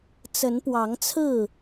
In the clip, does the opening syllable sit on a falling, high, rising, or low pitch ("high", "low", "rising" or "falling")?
rising